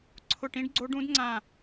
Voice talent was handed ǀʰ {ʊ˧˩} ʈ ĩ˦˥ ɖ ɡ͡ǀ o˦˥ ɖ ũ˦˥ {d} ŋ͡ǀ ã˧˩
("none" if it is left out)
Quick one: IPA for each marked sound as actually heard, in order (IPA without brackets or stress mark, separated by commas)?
ʊ˧˩, d